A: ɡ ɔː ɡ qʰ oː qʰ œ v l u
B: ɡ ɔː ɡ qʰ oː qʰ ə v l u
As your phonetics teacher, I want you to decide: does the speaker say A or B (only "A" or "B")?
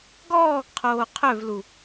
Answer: A